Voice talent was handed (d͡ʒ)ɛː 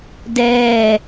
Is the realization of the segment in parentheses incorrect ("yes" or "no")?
yes